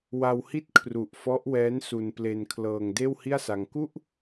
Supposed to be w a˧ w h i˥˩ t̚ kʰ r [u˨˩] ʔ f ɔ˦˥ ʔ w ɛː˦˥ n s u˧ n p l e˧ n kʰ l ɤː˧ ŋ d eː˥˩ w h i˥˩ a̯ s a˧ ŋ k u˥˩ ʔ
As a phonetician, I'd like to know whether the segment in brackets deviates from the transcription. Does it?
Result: no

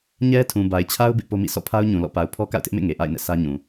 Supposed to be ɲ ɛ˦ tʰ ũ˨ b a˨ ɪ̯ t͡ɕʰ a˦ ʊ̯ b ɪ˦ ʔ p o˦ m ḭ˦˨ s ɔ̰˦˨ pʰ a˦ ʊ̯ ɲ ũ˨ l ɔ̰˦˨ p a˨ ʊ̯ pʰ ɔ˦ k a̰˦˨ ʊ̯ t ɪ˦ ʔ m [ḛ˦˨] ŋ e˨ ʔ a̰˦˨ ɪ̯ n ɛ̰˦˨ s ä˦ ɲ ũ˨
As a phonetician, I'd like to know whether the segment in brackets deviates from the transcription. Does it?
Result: no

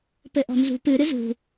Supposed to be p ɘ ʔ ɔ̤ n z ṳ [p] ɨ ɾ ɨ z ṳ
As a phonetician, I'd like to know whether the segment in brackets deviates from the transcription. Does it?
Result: no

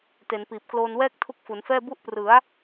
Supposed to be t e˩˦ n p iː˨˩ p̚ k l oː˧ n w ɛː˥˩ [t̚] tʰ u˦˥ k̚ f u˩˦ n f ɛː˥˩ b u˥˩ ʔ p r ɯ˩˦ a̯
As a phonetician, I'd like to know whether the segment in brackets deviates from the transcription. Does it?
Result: yes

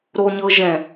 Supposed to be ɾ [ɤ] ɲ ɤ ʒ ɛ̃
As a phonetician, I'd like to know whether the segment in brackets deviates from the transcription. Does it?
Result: yes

